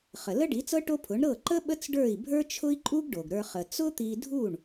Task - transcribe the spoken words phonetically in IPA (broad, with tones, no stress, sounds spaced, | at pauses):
χ ə˩ l ə˥ ɖ i˩˥ t͡s ɤ˥ ʈ o˥ pʰ ʊ˩˥ ɳ ɾ ɤ˥˩ ǃ ə˥ ɓ ə˥ t͡s ɖ ə˞˥˩ i̯ bʱ ə˞˥ t͡ʃʰ ʊ˥ i̯ ǃʼ u˥ ɡ ɖ o˩ ɡ ɾ ə˞˧ χ ə˩ t͡s ʊ˥ t̪ i˧ dʱ u˥˩ ɳ